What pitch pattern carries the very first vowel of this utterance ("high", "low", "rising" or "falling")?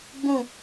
falling